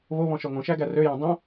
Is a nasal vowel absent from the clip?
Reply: no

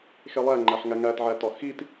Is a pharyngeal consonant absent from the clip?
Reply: no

